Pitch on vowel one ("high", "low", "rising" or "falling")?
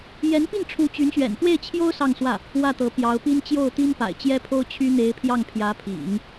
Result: rising